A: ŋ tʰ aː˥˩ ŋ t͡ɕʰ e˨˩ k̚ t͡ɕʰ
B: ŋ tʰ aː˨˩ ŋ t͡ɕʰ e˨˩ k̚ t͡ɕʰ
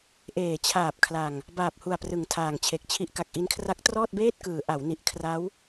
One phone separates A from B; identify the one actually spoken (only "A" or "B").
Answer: B